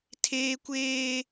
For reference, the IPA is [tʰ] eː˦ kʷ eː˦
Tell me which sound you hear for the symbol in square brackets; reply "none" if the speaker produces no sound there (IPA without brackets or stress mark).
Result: tʰ